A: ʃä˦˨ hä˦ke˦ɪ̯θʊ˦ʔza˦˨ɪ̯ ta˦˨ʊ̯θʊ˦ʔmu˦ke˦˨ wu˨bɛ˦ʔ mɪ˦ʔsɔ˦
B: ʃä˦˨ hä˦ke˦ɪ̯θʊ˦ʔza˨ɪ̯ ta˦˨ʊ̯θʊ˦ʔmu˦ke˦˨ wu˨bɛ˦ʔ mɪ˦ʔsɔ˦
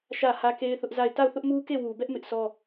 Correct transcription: A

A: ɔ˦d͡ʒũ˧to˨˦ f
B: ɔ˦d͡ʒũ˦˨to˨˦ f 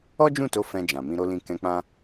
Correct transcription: B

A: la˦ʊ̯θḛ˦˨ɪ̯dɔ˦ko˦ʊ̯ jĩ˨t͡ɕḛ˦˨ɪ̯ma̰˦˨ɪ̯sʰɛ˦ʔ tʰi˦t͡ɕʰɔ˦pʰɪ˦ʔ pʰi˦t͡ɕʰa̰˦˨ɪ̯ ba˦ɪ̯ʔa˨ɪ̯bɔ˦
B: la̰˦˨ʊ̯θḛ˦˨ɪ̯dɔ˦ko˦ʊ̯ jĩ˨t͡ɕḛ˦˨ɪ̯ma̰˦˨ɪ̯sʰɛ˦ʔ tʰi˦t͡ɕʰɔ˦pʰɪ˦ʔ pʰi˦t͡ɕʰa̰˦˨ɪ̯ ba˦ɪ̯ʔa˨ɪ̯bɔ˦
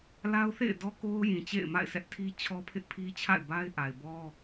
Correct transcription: A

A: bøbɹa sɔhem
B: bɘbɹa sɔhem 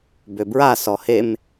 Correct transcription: A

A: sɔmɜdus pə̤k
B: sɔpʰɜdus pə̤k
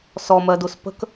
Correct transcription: A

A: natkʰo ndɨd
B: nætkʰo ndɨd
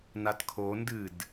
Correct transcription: A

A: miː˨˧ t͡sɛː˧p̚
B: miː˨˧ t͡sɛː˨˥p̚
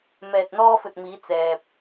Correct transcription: A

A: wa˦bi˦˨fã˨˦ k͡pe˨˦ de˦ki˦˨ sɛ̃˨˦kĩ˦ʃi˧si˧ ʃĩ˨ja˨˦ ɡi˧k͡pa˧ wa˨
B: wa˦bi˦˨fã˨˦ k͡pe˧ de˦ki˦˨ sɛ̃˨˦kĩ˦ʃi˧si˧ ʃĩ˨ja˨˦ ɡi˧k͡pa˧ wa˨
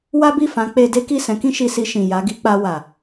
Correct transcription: B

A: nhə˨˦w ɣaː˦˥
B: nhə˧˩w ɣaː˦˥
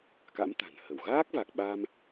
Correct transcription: B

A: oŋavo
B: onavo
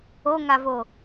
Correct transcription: A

